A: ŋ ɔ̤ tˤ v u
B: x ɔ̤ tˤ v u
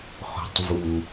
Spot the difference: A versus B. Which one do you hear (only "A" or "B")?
B